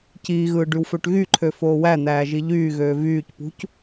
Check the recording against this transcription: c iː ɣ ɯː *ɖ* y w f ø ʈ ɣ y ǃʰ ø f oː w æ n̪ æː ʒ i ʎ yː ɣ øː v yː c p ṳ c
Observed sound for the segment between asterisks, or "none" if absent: ɖ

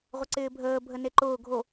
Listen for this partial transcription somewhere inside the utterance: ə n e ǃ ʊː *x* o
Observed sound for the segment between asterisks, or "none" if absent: ɡʱ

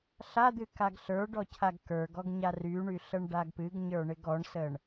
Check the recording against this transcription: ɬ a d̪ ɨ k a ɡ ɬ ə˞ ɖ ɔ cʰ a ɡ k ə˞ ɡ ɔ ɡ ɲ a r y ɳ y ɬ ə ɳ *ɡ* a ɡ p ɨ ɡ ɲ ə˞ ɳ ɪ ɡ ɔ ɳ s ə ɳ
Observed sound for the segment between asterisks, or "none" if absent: ɖ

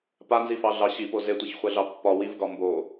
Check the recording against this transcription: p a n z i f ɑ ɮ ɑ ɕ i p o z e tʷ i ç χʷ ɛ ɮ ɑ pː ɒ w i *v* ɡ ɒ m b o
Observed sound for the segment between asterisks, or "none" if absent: v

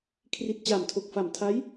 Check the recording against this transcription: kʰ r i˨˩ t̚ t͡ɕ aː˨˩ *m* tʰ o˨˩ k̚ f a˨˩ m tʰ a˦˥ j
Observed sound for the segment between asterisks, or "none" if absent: m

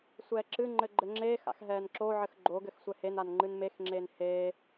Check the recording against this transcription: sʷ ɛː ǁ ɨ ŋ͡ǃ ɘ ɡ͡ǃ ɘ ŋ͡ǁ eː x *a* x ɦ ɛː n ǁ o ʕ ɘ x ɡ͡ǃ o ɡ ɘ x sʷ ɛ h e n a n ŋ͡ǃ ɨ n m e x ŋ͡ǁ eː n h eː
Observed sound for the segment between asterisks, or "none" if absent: a̰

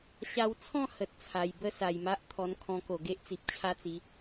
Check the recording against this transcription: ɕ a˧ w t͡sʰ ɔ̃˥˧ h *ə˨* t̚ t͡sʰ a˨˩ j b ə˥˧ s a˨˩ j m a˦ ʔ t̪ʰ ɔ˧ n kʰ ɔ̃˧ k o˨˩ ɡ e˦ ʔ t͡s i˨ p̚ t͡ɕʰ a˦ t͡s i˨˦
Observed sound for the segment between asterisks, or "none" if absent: ə˨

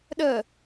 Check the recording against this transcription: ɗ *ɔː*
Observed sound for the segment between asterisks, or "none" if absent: əː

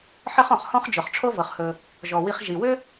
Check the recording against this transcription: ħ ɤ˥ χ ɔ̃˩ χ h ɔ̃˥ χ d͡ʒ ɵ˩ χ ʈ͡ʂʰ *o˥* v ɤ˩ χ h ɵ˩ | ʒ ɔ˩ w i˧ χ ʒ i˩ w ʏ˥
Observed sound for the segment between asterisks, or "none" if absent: o˥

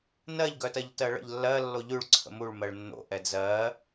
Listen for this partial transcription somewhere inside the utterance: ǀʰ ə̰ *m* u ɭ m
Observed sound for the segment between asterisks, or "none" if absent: m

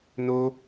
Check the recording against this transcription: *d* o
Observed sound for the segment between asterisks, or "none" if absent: n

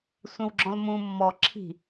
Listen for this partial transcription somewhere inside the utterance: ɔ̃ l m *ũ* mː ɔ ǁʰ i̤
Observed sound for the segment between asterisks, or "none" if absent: ũ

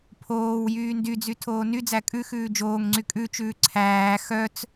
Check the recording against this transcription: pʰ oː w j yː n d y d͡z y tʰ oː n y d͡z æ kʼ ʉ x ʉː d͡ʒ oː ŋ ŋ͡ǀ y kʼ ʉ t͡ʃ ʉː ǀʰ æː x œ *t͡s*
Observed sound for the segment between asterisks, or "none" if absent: t͡s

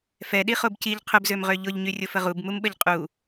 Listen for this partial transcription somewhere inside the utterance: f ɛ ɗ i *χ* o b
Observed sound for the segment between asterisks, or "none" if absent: χ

